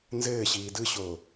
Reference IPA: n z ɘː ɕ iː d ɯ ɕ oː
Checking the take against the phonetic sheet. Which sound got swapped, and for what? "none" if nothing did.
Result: none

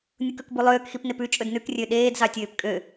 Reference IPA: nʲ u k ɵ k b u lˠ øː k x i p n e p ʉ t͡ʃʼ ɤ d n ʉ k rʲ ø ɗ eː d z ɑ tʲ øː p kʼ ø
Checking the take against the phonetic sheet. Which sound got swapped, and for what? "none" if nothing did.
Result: ɤ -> ɵ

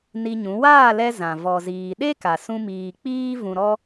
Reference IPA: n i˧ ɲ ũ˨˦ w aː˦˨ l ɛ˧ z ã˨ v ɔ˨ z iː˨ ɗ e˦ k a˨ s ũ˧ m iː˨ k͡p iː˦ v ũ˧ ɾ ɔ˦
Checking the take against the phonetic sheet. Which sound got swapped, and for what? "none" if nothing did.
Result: none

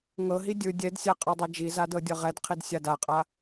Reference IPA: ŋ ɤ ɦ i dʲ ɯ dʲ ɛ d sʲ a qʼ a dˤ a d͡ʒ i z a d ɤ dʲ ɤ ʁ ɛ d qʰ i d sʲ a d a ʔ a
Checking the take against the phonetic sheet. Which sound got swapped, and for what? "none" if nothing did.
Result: ʔ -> qʼ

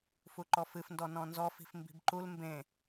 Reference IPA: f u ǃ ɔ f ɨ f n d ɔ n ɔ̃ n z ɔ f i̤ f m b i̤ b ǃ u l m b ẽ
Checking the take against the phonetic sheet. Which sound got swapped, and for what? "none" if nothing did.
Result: none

